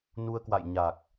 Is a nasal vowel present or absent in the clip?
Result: absent